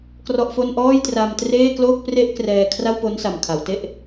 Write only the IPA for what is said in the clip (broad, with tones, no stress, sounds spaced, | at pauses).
k r ɔ˥˩ ʔ f o˥˩ n ʔ ɔː˥˩ j t r a˧ m t r eː˥˩ k l oː˥˩ k̚ p r e˥˩ ʔ k r ɛː˧ kʰ r a˥˩ w p o˦˥ n s a˨˩ m kʰ a˩˦ w t e˦˥ ʔ